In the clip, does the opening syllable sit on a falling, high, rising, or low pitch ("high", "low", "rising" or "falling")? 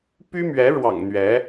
high